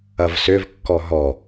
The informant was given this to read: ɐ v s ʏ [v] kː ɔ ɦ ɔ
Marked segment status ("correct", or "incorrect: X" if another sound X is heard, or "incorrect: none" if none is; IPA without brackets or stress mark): correct